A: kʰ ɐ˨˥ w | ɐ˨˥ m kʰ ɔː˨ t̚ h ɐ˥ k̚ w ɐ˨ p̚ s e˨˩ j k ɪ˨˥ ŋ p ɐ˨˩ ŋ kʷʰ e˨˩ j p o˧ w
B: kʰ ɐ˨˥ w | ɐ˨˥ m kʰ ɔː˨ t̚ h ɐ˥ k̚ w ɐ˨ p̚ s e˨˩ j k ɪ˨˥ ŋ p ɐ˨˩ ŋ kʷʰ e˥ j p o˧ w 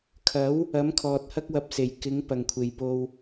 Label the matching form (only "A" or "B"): A